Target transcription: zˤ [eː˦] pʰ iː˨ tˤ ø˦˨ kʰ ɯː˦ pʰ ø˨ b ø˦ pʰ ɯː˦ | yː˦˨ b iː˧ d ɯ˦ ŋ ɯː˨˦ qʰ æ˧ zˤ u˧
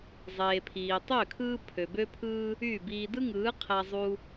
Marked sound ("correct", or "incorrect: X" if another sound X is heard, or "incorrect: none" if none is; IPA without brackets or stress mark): incorrect: eː˨